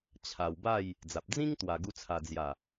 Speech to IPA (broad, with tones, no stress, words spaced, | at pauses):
t͡ɕʰa˨˩wba˥˧j | d͡za˨p̚ d͡zĩ˦ŋ t̪wa˧ɡu˦t͡sʰa˧ d͡zja˨˩